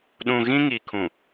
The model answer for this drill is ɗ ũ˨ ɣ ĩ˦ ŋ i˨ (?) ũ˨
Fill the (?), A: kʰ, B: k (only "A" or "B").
A